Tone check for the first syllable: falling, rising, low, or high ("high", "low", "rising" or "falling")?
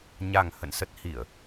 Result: low